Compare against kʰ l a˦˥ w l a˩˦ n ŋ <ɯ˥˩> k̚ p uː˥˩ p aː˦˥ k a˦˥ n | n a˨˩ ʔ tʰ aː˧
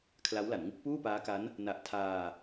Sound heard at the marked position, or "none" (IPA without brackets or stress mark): ɯ˦˥